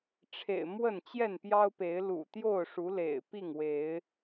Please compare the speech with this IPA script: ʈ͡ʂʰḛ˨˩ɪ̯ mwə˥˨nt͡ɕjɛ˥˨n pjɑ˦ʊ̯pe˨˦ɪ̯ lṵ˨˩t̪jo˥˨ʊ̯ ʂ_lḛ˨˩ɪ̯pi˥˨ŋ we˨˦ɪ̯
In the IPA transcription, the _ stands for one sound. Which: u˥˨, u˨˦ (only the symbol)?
u˨˦